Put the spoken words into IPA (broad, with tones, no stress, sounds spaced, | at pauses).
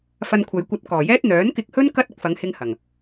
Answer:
f ɐ˧ n kʷʰ ɐ˨˧ j kʷ ɐ˧ t̚ k ɔː˨˩ j ɛː˥ t̚ n̪ œː˨˥ n k ɪ˧ k̚ h ɵ˥ n k ɐ˥ t̚ ɪ˧ k̚ f ɐ˨˧ ŋ h ɪ˧ ŋ h ɐ˨˩ ŋ